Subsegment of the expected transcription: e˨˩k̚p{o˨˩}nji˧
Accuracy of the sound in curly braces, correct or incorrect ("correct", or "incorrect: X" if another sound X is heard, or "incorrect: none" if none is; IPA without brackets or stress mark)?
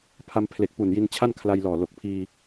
incorrect: u˨˩